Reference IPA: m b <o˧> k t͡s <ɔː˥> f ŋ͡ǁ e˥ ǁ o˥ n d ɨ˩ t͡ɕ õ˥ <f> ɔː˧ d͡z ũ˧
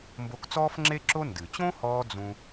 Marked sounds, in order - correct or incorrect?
correct, correct, incorrect

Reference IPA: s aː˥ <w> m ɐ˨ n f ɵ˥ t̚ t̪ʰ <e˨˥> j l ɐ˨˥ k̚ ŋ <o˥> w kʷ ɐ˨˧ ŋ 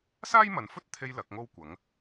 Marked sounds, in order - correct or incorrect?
incorrect, incorrect, correct

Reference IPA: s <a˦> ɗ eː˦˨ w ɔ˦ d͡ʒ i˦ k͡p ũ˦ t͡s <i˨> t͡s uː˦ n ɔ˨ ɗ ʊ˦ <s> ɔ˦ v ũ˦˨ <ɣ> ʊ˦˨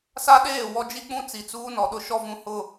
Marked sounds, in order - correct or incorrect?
correct, correct, incorrect, incorrect

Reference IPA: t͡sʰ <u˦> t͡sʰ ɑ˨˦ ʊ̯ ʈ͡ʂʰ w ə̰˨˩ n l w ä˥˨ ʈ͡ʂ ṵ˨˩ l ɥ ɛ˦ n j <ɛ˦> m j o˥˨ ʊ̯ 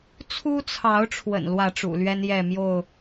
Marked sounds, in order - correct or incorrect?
correct, incorrect

